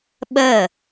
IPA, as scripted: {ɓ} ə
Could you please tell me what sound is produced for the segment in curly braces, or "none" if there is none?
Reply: ɓ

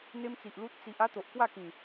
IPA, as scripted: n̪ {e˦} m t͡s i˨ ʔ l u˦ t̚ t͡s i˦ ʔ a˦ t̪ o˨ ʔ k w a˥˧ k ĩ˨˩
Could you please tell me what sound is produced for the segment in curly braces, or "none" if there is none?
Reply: e˦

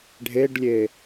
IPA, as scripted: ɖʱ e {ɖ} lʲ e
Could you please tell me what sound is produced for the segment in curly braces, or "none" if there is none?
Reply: ɖ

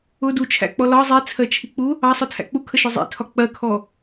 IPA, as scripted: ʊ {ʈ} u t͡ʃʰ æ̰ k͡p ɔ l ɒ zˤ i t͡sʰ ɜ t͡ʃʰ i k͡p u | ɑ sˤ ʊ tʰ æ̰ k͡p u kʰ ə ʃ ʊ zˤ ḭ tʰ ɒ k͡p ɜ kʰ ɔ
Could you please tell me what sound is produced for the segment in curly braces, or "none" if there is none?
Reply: d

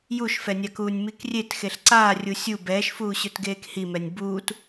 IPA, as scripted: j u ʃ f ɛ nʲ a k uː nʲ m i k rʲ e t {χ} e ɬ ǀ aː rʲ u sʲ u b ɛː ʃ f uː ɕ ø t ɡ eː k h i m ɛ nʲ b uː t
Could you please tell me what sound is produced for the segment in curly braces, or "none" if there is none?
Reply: x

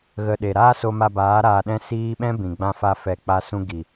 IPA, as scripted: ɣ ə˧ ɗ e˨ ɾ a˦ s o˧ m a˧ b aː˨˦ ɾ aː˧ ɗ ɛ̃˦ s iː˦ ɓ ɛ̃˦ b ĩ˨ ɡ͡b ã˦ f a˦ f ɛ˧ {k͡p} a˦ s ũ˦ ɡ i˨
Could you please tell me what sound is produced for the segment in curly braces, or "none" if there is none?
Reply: k͡p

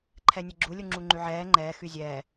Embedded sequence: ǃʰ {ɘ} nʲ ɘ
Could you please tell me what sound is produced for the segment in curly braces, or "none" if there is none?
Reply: ɛ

